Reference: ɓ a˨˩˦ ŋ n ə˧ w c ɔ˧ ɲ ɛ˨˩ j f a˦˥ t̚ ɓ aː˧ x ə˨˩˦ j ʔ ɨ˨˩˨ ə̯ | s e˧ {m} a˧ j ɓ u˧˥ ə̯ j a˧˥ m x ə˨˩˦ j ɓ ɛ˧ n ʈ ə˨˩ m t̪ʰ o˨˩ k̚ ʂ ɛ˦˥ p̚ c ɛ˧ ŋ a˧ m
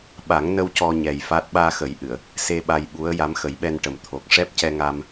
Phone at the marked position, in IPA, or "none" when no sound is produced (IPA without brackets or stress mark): ɓ